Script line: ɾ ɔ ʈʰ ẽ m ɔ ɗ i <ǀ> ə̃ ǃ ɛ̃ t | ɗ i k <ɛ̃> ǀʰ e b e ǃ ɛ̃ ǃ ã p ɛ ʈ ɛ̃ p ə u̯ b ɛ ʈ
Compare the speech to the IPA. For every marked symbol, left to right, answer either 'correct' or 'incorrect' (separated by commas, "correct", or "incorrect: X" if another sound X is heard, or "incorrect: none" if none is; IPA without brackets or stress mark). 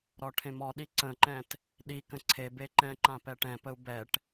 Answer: correct, incorrect: ə̃